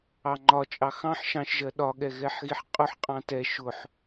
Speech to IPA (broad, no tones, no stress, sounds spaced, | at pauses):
ɑ ŋ͡ǃ ɒ t͡ʃʼ ɑ x ɑ̃ ħ ʃ ɑ̃ ʃ ʒ ɜ ɗ ɒ ɠ ɛ ɣ ɛ ħ ɣ i ħ qʼ ʊ ħ qʼ ɑ̃ t ɛ ʃ ʊ ħ